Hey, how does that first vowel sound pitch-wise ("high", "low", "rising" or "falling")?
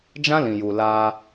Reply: high